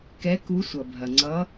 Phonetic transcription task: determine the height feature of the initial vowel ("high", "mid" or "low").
mid